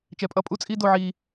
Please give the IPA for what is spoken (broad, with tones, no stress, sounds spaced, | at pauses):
t͡ʃ ɛ˨ pʼ ʌ˧ pʼ u˦ t͡sʼ i˦ d o˧ ʕ i˧